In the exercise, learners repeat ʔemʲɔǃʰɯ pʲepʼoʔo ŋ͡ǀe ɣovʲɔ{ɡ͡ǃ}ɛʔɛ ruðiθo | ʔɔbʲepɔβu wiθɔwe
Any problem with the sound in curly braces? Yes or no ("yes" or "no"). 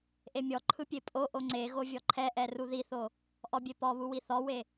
yes